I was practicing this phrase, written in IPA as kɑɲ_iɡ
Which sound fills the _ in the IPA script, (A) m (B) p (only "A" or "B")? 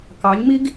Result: A